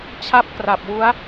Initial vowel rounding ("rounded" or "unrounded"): unrounded